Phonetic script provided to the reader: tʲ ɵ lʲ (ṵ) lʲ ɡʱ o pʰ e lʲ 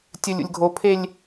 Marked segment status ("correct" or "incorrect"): correct